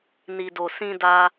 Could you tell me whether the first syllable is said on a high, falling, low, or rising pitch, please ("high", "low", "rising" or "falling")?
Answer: low